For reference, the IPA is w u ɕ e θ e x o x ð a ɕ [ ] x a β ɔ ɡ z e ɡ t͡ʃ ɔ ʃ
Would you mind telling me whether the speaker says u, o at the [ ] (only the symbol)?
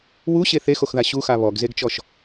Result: u